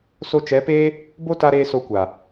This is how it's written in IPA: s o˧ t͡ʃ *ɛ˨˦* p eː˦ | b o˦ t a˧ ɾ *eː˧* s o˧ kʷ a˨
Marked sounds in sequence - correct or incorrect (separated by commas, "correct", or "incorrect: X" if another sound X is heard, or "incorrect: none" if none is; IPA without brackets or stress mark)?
correct, correct